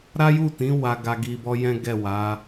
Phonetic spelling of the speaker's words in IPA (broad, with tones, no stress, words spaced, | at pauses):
ɾa˦ju˦˨tĩ˨˦ wa˧ɡa˧ɡi˧bɔ˦ jɛ̃˦ɡɛ˦˨ wa˨˦